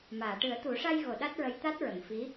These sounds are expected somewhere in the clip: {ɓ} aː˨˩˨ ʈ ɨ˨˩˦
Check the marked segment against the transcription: incorrect: m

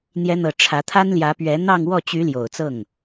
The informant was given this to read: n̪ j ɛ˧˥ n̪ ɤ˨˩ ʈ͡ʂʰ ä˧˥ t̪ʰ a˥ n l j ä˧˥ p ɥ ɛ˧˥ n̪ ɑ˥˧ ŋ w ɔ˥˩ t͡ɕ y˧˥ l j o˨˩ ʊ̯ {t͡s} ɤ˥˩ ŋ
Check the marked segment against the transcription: correct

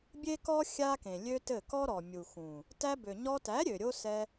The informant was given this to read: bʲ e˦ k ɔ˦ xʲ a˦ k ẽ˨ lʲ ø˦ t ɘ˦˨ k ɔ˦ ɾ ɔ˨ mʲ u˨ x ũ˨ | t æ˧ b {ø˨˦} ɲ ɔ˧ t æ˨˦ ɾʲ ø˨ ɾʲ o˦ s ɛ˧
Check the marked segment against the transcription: incorrect: ø˨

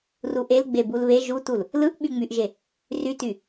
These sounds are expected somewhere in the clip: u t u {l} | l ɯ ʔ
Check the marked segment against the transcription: correct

